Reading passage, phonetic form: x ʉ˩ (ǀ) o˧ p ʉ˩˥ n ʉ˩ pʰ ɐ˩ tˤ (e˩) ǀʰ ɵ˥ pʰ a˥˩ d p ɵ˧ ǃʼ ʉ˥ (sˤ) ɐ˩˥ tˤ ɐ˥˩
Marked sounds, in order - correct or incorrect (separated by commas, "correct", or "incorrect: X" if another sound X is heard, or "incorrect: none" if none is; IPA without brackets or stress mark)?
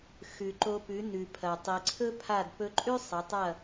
incorrect: ǃ, incorrect: i˩, correct